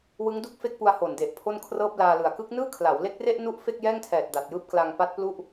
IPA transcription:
wɯ˦˥ŋdu˥˩k̚fe˥˩k̚pu˧a̯ ho˨˩nde˨˩ʔ pʰo˥˩nkʰrɤː˥˩p̚laː˧lɯ˨˩a̯ kɯ˦˥k̚nɯː˥˩kʰla˩˦w le˦˥k̚re˥˩ʔ nu˦˥ʔ fe˥˩k̚jɛː˥˩ŋtʰɛː˨˩t̚ da˨˩t̚jɯː˦˥p̚kla˧ŋ pa˦˥t̚plu˥˩ʔ

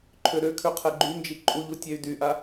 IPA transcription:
ǃʰøɾøkʰø qʰɛɡ͡ǃynd͡ʒi ǃʼuʎu tʲɛy̯dyʔa

